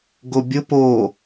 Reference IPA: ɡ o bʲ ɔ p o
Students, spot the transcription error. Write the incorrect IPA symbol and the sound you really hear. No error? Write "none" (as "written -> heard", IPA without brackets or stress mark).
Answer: ɔ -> ʊ